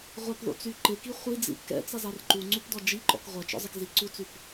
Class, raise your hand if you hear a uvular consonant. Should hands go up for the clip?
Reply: yes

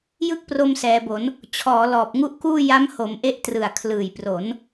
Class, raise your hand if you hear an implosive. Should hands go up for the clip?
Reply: no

